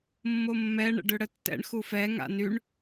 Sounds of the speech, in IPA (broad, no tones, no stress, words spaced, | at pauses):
mːomːɛ ɳə̰ɖøɽətːɛ̰ɳ xufɛ ŋa̰nyɳ